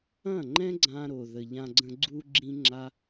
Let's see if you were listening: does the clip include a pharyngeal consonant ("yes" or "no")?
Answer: no